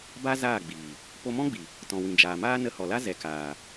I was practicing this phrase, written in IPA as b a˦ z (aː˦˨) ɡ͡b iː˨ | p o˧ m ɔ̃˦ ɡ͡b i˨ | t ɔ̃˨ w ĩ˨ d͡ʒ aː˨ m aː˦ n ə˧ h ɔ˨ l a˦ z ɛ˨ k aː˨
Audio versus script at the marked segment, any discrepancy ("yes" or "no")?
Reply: no